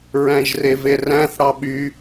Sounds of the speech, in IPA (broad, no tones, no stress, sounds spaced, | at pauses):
ɹ æ̃ ʒ r e v e r æ̃ θ ɽ ɑ ɓ y